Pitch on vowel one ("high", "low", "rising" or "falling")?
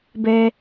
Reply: high